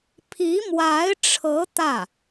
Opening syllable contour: rising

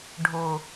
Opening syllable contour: low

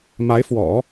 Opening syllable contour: rising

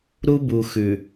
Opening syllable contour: high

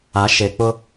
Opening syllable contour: rising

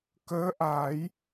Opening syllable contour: rising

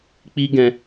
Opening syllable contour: high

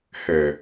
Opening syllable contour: low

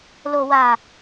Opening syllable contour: low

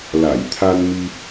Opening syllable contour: low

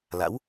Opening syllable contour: rising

